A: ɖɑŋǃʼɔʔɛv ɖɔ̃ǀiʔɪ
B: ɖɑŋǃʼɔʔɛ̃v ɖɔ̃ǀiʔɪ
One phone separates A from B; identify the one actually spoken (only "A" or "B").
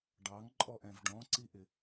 B